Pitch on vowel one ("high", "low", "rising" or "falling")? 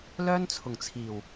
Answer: high